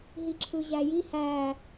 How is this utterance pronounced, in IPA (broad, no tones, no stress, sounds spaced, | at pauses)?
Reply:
ɦ i ǁʰ ɯ ʑ æ j i h æ